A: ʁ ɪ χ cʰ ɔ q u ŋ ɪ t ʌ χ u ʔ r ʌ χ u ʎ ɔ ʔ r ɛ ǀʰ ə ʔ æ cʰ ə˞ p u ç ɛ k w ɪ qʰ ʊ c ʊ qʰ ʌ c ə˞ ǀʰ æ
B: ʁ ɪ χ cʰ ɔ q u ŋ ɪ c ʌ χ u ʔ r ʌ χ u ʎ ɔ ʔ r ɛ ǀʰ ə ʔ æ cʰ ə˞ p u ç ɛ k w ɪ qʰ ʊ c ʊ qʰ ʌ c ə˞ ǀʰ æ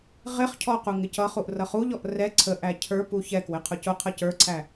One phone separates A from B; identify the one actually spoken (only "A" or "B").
B